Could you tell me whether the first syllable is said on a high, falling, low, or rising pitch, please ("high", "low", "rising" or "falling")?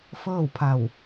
falling